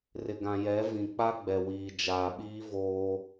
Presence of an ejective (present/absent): absent